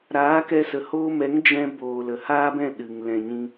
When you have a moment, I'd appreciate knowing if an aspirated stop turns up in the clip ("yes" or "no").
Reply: no